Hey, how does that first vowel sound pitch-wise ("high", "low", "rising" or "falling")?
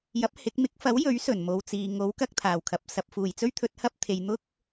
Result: rising